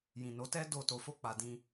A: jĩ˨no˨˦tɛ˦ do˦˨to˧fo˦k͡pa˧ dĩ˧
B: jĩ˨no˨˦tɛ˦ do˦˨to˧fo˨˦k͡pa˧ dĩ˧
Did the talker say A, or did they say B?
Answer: A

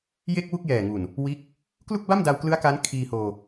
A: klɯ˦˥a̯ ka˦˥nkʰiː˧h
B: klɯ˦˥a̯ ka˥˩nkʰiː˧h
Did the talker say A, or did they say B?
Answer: A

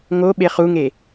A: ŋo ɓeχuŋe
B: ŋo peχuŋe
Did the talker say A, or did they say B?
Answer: A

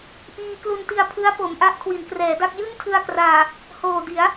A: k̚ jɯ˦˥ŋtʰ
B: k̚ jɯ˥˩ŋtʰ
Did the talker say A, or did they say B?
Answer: B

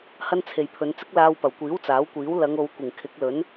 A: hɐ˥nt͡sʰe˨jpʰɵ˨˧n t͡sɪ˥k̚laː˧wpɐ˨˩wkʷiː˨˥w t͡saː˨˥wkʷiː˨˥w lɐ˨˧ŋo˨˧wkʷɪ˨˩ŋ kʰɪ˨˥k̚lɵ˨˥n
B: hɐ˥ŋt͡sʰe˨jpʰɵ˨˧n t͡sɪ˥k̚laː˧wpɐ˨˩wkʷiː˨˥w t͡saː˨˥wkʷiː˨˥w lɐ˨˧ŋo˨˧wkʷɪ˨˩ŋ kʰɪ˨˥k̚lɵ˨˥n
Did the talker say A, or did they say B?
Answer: A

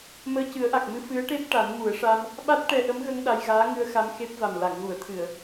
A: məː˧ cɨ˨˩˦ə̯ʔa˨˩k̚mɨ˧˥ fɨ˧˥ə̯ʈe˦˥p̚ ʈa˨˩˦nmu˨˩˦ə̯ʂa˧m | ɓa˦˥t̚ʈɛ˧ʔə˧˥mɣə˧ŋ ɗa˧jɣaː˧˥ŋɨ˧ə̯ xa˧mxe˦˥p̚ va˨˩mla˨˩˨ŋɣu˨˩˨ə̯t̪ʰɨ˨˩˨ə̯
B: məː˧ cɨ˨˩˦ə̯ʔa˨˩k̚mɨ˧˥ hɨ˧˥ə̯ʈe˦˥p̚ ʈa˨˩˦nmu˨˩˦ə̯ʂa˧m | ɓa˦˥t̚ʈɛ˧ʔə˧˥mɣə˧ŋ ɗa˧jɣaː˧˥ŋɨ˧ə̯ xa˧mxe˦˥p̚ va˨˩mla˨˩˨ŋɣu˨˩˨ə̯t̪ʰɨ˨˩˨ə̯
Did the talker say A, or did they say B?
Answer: A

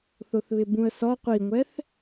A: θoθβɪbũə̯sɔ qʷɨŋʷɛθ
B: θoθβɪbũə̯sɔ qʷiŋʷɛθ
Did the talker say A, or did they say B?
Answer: B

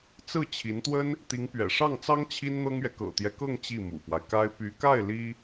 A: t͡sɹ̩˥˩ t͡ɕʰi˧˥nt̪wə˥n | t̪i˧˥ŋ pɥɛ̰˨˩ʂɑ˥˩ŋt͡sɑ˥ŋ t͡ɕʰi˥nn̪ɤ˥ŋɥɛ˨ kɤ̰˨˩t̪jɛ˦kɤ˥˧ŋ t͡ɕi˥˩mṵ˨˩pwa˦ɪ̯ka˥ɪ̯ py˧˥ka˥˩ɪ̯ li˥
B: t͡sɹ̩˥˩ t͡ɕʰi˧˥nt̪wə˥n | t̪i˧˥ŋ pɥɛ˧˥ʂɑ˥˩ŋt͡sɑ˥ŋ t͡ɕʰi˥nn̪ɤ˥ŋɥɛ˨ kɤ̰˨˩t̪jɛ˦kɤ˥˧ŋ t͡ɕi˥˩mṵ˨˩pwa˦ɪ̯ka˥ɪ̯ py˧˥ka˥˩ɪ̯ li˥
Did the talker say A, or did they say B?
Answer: A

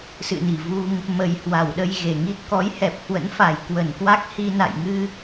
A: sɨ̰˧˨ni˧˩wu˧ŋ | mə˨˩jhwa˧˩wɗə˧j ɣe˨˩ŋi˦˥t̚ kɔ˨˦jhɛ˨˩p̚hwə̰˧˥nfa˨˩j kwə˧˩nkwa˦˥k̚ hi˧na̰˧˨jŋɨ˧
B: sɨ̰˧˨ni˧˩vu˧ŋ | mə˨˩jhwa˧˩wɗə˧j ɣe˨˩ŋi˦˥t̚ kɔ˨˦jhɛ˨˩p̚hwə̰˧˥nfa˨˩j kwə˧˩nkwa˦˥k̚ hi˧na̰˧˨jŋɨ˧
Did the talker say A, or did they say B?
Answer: B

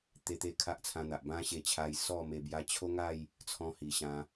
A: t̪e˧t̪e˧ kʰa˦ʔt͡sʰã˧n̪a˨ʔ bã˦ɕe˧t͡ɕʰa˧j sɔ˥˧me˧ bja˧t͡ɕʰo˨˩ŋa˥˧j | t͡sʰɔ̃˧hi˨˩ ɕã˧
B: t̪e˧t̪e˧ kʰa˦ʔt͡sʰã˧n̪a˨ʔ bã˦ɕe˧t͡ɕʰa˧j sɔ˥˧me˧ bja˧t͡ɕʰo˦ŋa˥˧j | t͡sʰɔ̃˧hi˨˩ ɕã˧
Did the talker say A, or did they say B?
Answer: B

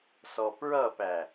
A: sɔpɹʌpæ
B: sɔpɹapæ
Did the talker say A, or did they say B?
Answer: A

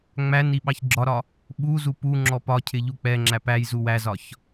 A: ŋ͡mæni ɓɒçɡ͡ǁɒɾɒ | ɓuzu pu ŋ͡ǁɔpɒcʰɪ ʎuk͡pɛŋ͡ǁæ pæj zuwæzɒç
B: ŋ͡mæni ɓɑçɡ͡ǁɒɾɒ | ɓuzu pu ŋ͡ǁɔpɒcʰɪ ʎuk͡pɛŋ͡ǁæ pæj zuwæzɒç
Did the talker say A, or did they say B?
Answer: B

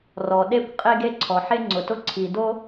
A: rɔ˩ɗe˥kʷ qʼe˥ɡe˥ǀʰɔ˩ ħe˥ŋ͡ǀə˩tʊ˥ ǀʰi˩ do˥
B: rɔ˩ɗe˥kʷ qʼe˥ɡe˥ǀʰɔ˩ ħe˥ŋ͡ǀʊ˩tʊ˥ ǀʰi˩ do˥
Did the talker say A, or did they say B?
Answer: B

